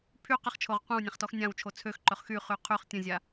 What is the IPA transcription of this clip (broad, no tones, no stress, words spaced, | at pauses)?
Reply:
pʰy qəχt͡ʃʰoʁ qʷẽwnʲãχtɔx nʲãwt͡ʃʰo t͡sʰøxǃœχ xyχy qʰyχ tʲə̃zʲa